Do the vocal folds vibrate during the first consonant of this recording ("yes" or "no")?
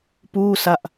no